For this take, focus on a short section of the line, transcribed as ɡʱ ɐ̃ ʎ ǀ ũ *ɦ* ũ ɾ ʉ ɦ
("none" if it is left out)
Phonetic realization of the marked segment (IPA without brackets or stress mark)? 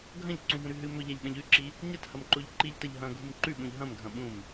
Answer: ɦ